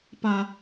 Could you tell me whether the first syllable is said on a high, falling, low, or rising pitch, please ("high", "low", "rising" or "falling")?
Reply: high